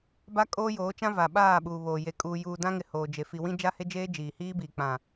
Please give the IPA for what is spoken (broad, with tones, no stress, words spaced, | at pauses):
ba˦ kʼoː˦joː˨˦t͡ʃã˦va˨ ɓaː˦˨ ɓuː˨βoː˨ je˨ kʼuː˨juː˨dã˦ŋɪ˨ hoː˨d͡ʒe˨ fi˨wĩ˦ d͡ʒa˦he˦d͡ʒeː˦ d͡ʒiː˨hiː˦biː˨ k͡pã˨